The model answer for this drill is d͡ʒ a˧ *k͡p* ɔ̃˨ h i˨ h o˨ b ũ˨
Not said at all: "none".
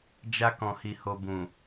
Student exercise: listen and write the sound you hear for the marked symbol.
k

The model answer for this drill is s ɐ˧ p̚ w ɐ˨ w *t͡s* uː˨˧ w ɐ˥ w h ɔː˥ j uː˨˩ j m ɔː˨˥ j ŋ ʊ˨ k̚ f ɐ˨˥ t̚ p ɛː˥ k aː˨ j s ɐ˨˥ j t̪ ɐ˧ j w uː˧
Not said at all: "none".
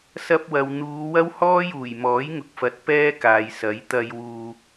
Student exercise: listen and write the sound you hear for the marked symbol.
n̪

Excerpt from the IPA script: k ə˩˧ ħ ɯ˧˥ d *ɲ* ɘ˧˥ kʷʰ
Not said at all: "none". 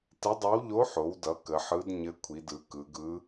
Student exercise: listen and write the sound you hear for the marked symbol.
ɲ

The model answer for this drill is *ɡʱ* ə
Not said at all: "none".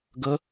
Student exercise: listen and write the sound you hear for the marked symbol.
ɡ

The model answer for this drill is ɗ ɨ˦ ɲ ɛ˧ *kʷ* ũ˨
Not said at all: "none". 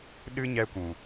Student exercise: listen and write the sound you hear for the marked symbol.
kʷ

